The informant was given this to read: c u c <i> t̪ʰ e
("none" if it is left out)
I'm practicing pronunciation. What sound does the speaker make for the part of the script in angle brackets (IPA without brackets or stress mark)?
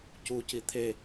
i